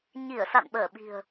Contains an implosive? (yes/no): yes